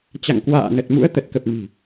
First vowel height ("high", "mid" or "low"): low